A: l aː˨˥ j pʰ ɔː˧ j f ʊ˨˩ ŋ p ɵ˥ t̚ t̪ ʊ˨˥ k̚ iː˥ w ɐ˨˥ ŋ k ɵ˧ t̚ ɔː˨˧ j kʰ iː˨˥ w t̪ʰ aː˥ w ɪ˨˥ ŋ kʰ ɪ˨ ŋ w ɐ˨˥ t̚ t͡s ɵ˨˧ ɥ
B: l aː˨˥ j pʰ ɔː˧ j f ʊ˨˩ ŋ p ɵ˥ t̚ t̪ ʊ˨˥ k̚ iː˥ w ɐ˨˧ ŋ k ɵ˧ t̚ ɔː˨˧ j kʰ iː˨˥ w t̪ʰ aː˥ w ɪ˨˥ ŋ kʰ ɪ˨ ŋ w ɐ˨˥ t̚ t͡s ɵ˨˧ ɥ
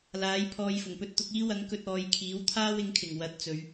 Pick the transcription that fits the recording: A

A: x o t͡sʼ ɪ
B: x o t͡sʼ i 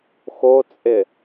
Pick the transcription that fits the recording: A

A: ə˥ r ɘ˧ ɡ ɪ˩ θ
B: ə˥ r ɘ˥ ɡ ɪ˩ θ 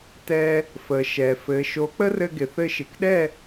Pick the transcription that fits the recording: A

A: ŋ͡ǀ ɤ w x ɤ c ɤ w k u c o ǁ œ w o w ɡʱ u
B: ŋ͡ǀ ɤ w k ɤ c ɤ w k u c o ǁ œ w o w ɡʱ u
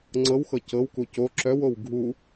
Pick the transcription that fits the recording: A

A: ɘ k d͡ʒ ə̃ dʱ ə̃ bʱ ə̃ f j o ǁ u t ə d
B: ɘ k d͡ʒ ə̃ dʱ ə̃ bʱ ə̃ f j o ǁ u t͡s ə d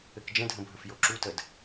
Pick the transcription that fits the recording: A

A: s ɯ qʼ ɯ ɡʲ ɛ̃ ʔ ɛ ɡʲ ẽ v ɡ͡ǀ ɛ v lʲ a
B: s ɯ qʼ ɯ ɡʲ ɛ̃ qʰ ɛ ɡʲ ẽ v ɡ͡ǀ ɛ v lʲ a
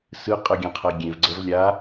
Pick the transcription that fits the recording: B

